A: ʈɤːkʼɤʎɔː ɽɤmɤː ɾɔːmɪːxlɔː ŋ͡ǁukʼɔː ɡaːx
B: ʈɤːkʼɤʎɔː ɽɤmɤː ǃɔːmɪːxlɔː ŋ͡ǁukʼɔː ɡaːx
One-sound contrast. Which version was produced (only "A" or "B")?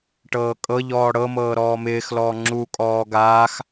A